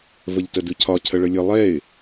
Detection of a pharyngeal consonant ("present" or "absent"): absent